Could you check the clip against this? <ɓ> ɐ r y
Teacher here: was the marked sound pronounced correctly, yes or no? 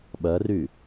yes